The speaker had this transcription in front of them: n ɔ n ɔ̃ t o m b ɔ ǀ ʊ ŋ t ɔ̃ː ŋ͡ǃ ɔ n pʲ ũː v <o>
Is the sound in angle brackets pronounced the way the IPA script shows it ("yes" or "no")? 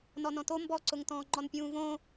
no